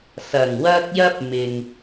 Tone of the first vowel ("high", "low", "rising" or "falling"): low